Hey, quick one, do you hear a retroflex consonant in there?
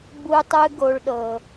yes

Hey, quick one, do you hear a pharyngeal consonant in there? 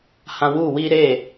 no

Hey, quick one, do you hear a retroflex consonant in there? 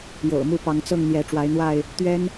yes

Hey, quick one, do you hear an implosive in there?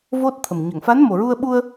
yes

